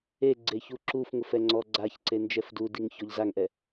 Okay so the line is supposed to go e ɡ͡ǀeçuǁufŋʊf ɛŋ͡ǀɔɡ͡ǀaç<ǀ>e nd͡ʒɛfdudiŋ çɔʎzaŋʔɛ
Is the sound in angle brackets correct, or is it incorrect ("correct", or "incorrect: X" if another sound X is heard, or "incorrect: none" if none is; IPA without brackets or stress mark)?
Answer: correct